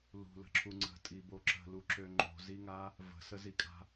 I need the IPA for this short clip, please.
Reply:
l ṳ l ə̤ ǁʰ u ŋ͡ǀ ə̤ tʼ i b o ǁ ə̤ l u ǁ ø ŋ͡ǃ o̤ z i ŋ a | v ə̤ s ə z i kʼ a̤

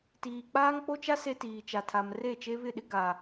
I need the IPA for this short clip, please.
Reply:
t iː˨ k͡p aː˦ ŋ k͡p o˦ t͡ʃ a˦ s e˦ t iː˨ t͡ʃ a˨ tʰ a˨ m r e˦˨ t͡ʃ e˦ β ɪ˦˨ ɗ ɪ˦ ɡ a˨

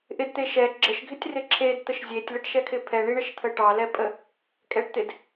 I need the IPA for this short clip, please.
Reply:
ʔ ɪ d t̪ e ʃ ɛ ɡ͡ǁ ə ʃ ɡʱ ɪ tʲ r ɪ ǁʰ e d t̪ ə ʃ zʲ e tʲ l ə ʈ ʃ ɛ kʰ ɪ pʰ ɛ ɳ i ɳ ə ʃ t̪ʰ ə ʈ ɑ l ɛ pʼ ə | kʼ ɛ ʈ t̪ ɪ d

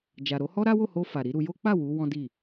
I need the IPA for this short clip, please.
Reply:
d͡ʒ a˨ ɾ o˨˦ h ɔ˦ ɾ a˦ w o˦˨ h o˧ f a˨ ɾ i˨˦ ɾ u˧ j o˦ k͡p a˦˨ w u˨˦ w ɔ̃˦ d i˦˨

